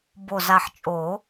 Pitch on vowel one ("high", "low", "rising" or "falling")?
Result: low